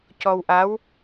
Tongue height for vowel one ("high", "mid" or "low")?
mid